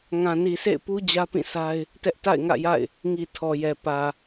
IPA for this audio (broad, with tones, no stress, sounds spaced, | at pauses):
ŋ ã˨ n i˨ sʰ ḛ˦˨ ɪ̯ p u˦ d͡ʑ ä˦ p ĩ˦˨ sʰ a˦ ɪ̯ | t ɛ˦ ʔ t a̰˦˨ ɪ̯ ŋ ä̰˦˨ j a̰˦˨ ɪ̯ | ŋ i˨ tʰ ɔ˨ j ɛ˨ p ä˨